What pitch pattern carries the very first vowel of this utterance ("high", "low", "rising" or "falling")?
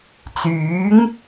rising